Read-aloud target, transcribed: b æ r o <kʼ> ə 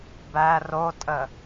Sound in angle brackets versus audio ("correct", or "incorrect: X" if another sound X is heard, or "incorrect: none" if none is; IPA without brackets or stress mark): incorrect: tʼ